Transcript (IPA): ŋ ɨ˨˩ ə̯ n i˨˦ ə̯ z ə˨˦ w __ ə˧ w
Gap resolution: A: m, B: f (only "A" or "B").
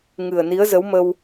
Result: A